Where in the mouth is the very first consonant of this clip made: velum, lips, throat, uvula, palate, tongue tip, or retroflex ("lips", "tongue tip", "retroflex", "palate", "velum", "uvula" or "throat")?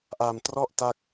throat